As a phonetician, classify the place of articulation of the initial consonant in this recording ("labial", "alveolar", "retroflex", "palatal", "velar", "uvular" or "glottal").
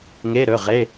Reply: velar